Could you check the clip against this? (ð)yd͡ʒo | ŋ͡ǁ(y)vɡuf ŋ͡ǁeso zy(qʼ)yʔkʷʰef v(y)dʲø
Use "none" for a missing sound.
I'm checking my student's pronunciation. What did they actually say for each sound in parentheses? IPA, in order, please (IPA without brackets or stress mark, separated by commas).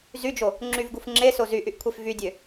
z, y, ʔ, y